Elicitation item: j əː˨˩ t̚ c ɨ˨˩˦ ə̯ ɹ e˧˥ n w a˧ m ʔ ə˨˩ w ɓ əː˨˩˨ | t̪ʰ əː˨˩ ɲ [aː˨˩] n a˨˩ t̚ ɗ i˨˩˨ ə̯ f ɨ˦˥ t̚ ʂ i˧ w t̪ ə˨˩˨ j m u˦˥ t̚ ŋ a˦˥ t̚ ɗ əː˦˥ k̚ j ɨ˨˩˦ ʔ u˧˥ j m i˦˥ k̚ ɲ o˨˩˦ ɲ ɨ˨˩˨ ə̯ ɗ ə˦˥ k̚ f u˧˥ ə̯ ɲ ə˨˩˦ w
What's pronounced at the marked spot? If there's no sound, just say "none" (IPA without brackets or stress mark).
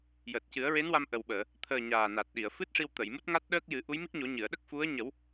aː˨˩